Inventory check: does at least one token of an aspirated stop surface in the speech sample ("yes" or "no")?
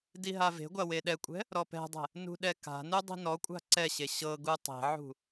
no